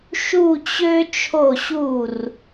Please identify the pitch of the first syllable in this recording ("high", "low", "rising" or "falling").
falling